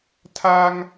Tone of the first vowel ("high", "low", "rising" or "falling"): high